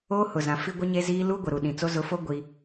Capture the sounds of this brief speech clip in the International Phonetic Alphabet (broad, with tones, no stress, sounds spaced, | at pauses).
oː˦ h ʊ˨ z ã˨ f i˦ ɡʷ ɪ˦ ɲ e˦ z iː˦ l u˦ ɡʷ ɪ˨ ɾ u˨ ɗ ĩ˨ t͡s o˦ z ʊ˨˦ f o˦ ɡʷ i˦